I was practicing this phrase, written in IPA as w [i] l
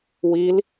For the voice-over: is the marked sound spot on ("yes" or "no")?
yes